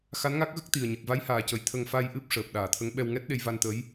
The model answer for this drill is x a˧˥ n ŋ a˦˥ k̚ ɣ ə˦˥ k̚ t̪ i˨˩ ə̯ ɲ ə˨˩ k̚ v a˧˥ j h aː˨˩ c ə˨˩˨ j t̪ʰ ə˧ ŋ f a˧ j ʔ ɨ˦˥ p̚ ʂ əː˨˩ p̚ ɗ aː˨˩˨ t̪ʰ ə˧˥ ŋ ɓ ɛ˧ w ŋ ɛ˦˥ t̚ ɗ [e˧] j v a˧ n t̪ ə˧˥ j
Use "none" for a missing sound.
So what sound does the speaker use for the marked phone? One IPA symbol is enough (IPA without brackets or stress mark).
e˧